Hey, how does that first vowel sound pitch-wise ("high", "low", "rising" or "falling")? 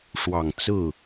low